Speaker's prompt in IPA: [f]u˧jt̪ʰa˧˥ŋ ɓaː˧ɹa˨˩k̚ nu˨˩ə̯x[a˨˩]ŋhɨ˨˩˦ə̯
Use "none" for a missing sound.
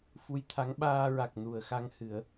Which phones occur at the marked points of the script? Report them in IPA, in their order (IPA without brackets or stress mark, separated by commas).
f, a˧